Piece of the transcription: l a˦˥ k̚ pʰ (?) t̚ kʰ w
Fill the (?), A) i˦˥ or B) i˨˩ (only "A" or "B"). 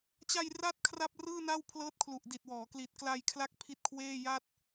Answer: A